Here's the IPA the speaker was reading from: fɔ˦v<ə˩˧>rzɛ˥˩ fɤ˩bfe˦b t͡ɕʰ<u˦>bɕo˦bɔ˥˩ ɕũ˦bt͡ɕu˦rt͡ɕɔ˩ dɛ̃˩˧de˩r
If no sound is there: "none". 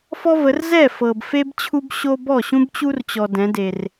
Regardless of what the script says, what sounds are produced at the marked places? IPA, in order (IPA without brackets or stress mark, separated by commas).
ə˩˧, u˦